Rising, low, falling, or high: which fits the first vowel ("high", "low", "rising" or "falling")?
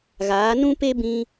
rising